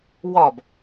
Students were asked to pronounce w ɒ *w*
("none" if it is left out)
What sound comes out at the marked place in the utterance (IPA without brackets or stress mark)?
b